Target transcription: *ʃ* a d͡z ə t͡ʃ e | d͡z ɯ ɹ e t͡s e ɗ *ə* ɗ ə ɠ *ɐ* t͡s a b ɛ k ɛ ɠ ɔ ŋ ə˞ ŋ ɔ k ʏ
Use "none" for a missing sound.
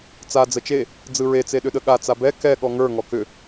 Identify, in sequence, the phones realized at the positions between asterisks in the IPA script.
t͡s, ʏ, a

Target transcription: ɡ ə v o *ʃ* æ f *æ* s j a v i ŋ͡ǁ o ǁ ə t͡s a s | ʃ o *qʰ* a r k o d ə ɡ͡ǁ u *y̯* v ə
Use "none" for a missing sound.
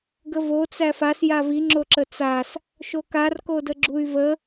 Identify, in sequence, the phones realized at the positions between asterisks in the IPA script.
t͡s, a, k, y̯

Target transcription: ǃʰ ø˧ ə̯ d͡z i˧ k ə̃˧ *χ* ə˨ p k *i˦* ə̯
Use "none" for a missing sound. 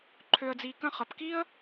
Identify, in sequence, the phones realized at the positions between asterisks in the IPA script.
χ, i˦

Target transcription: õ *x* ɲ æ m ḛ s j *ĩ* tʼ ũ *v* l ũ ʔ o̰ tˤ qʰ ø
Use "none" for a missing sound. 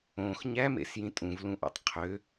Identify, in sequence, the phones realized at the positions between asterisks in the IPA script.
x, ĩ, v

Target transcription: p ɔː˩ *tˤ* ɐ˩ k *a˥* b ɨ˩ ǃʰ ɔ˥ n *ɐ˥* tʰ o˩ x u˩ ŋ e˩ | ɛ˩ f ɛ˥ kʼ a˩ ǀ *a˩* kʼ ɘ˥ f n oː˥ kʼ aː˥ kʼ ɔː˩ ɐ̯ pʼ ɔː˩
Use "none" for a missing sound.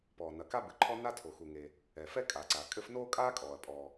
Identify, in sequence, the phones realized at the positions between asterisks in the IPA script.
n, a˥, a˥, a˩

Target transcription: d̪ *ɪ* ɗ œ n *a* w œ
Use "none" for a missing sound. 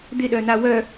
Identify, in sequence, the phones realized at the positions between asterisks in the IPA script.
ɪ, a

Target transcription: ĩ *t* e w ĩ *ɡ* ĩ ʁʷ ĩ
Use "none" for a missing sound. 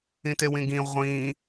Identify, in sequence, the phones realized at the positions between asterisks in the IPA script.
t, ɡ

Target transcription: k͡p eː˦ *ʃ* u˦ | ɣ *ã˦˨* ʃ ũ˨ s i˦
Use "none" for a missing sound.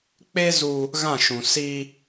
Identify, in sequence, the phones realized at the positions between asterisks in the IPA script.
z, ã˦˨

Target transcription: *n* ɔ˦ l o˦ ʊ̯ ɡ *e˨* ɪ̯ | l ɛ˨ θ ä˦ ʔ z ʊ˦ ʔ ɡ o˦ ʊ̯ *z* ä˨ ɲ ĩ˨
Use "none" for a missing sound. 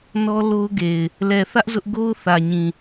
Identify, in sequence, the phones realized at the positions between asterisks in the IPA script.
n, e˨, θ

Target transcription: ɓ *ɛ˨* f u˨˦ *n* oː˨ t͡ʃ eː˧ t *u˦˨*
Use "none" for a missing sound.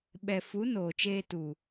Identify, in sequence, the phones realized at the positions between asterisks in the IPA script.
ɛ˨, n, u˨

